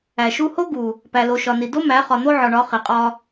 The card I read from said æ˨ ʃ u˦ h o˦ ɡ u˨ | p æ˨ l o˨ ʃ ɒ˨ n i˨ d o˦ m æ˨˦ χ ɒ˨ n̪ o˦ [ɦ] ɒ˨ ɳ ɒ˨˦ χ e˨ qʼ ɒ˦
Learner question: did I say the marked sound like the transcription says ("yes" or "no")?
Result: no